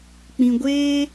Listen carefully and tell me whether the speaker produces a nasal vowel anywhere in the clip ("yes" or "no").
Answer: yes